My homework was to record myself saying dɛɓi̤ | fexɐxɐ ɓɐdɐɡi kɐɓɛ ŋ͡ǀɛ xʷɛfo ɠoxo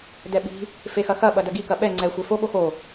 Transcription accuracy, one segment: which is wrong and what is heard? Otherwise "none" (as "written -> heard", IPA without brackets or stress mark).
none